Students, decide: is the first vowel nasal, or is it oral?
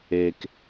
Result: oral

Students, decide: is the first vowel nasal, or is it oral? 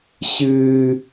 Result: oral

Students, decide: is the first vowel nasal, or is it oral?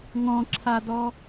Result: nasal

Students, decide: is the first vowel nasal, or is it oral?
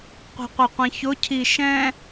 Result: oral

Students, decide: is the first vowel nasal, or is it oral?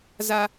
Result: oral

